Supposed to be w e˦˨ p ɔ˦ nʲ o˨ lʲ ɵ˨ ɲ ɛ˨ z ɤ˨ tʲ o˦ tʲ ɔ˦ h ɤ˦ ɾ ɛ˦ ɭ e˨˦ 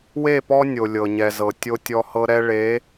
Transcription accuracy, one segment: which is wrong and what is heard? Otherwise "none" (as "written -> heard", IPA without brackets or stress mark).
ɵ˨ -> ɤ˨